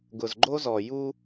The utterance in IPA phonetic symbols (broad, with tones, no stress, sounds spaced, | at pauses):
ɡ ʊ˨ z ɡ͡ǃ o˦ z ɔ˨ j u˦